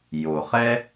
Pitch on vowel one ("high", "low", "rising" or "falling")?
low